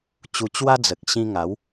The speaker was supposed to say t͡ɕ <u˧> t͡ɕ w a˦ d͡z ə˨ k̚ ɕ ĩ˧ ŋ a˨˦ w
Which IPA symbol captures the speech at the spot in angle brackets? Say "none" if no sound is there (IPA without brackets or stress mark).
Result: u˧